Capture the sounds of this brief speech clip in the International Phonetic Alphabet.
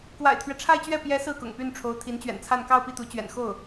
kwa̰˨˩ɪ̯t̪ʰɥɛ˦ʈ͡ʂʰa˥˧ɪ̯t͡ɕɥɛ˥˩ pjɛ˧˥ sɹ̩˥˩kʊ̰˨˩ŋpy˥˩nʈ͡ʂʰo˧˥ʊ̯ t̪ʰi˧˥nt͡ɕɥɛ̰˨˩nt͡sʰa˥˧n kɑ˥˧ʊ̯pi˥˩t̪u˧˥ t͡ɕɥɛ̰˨˩nxo˥˩ʊ̯

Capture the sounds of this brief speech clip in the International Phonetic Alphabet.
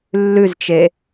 lːʉzt͡ʃe

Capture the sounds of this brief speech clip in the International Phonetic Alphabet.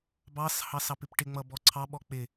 bɑshɑs ɑpɪpʈɪŋ͡mʌ bɔǀʰɑɓɔ k͡pɪ

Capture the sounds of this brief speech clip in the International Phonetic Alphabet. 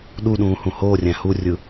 ɗuɗũː hũhoːrʲæ̃ hurʲɯ

